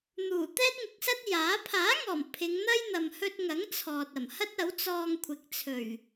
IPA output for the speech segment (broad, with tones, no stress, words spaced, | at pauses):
n̪uː˨˩t̪ɛː˥t̚ŋɪ˨˥k̚sɐ˥t̚ jaː˨˥ pʰaː˨˥ŋɔː˨˩m pʰɪ˨˧ŋn̪ɐ˥j n̪ɐ˨mhɵ˧t̚ŋɐ˨˥ŋ t͡sʰɔː˨t̚ɐ˨˩mhɐ˥t̚ ɐ˨˥wt͡sɔː˧ŋkʷʰɪ˨˥k̚t͡sʰɵ˨˩ɥ